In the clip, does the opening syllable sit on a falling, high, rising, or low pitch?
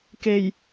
low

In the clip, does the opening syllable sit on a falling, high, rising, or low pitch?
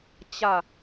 falling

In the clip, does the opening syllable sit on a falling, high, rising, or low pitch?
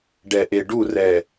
low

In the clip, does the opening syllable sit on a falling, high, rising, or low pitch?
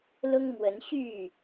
high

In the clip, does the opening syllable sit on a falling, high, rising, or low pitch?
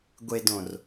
low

